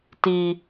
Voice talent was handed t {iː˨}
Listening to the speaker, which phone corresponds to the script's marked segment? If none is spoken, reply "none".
iː˨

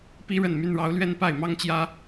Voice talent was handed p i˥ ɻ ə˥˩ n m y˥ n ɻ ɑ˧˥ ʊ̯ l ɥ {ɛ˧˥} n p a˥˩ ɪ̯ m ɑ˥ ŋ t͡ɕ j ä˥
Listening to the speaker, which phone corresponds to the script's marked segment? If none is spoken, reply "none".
ɛ˥˧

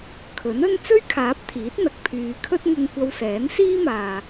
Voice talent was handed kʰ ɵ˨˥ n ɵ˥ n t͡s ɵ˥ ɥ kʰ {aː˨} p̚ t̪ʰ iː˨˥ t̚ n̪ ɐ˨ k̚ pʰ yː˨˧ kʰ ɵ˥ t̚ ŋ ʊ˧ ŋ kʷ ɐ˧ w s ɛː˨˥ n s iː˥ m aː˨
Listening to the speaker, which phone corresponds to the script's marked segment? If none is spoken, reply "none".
aː˨˥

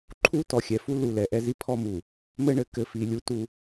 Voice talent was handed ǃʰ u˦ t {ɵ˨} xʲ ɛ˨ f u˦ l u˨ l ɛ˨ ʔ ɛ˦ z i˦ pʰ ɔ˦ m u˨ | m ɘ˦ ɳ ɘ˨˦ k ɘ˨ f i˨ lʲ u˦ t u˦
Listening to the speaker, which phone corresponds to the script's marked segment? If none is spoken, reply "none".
ɔ˨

